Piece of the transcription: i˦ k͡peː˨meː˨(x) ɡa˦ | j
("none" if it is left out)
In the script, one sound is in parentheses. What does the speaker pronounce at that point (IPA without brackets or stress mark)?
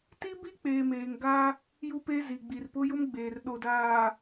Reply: ŋ